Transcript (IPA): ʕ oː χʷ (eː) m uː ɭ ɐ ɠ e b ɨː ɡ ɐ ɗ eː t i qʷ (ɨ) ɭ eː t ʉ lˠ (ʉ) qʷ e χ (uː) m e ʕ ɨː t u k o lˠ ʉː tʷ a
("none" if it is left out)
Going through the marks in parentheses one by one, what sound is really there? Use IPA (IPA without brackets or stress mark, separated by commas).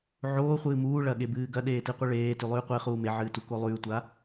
ɨː, ɨ, ʉː, uː